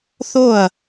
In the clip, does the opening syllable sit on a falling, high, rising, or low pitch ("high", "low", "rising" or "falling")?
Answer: falling